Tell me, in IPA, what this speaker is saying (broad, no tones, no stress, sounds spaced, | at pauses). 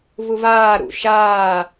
v u v aː ɾ ṵ ʃ aː